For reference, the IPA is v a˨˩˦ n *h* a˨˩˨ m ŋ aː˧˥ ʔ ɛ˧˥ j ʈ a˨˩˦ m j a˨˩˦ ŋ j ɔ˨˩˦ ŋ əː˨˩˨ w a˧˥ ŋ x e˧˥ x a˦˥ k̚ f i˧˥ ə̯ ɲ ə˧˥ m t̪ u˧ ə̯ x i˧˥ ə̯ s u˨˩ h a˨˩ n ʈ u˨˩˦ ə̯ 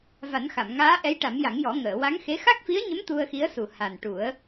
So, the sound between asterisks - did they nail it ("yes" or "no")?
no